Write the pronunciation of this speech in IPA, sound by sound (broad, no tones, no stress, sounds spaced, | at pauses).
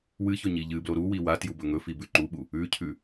w ɨ ç ɵ ɲ i ʎ ɨ b l o ɾ u w i w a t j u b ɵ ŋ ɵ f i b ʉ ǃ u ɓ u | ʉ cʰ ʉ